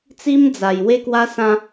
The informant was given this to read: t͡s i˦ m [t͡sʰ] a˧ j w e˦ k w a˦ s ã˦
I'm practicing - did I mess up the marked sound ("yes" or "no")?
yes